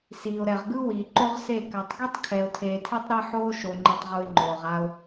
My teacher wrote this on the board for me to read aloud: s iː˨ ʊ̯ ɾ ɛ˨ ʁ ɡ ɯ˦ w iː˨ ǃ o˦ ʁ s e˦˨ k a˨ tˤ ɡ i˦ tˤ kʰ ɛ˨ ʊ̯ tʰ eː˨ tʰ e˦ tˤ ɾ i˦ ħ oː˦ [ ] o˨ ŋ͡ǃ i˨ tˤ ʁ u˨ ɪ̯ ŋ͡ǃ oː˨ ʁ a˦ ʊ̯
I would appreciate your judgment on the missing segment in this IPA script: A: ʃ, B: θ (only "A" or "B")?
A